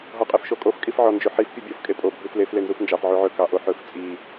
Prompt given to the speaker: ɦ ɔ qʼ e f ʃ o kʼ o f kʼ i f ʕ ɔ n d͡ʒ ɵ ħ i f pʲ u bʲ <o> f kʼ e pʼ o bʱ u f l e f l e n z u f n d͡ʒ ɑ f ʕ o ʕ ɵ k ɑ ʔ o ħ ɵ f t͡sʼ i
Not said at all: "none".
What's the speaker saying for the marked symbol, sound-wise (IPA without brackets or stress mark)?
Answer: o